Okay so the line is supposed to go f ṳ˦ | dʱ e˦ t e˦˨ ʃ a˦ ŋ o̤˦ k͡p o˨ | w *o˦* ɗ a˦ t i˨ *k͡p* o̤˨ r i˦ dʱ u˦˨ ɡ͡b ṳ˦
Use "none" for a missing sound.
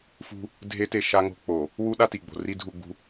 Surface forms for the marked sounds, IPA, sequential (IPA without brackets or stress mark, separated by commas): u˦, ɡ͡b